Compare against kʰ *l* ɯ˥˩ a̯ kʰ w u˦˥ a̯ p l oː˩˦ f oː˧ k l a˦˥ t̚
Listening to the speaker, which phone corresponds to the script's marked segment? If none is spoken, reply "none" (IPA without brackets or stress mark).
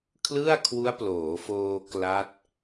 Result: l